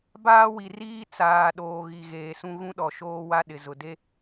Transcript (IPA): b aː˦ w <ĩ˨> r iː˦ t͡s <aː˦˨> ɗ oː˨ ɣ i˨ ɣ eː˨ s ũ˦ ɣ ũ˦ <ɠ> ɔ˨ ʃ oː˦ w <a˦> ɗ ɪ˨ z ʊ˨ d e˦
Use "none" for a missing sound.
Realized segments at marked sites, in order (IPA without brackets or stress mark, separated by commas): i˨, aː˨, ɗ, a˦